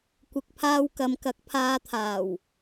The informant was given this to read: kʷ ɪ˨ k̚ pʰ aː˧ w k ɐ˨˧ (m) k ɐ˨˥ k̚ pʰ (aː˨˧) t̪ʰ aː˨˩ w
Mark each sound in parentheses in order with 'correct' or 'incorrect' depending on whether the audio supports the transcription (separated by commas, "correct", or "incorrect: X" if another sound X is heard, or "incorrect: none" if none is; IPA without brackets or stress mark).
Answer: correct, incorrect: aː˧